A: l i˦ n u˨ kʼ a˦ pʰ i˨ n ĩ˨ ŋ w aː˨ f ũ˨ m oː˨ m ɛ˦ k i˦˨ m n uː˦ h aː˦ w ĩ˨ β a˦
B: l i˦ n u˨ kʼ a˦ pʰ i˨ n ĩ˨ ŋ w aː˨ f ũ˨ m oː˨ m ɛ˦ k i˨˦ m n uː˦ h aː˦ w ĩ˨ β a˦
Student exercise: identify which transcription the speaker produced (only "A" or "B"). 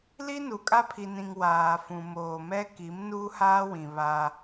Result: B